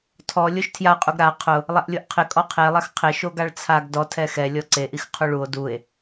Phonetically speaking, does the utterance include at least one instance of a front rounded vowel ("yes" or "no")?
no